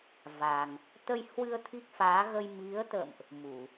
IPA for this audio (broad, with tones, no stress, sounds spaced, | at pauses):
v a˨˩ ŋ | t̪ ə˧ j h w ɨ˧ ə̯ t̪ʰ i˦˥ k̚ f aː˨˦ ɣ ə˧ j m i˨˦ ə̯ t̪ ə̰˧˨ m ʔ | m u˧˩˨